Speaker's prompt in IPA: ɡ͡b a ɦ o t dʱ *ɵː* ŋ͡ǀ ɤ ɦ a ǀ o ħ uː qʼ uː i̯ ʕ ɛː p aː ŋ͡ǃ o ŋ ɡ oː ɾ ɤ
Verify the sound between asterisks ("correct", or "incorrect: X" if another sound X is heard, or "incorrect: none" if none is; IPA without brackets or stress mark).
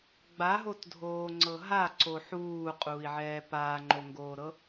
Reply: incorrect: oː